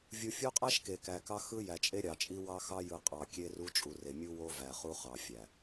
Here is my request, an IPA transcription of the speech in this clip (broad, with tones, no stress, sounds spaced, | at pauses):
vʲ u˨ fʲ o˦ qʼ æ˦ ʃ k e˨ k æ˨ k ɑ˦ x ɯ˦ j æ˨ t͡ʃʼ e˦ ɾʲ ɑ˨ t͡ʃʼ i˦ w ɑ˦ x ɑ˦ j ɯ˨ qʼ ɑ˨ kʲ e˦ r u˦ t͡ʃʼ u˨ r e˨ mʲ u˦ w o˦ v æ˨ χ u˦ χ ɑ˨ fʲ æ˨